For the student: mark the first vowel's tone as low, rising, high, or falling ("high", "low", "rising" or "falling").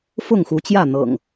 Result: falling